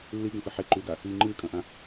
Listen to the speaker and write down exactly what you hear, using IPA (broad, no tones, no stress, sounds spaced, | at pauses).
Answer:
lː i ɡ ɐ̃ f ɨ ħ e ǃ ʉ ɡ a | i ŋ͡ǃ ɨː kʼ ɐ̃ ʔ ã